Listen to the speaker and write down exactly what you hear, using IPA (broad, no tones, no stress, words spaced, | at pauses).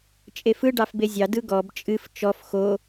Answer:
t͡ʃʼefɯ ɖɑfbezʲɑ dɯɡɔb t͡ʃʼɨf t͡ʃɔf xo